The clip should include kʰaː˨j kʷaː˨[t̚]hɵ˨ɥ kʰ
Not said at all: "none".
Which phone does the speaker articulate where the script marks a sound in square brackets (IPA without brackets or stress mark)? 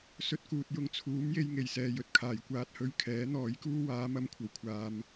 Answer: t̚